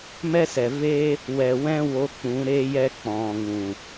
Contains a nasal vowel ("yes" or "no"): yes